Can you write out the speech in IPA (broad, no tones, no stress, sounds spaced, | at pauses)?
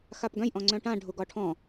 x a p ɡ œ̃ j ʔ ɔ̃ ŋ͡ǀ œ̃ ʈ ã ɖʱ u ɡ ɒ ʈʰ ɔ̃